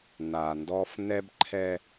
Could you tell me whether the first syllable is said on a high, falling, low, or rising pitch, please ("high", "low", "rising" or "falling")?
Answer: low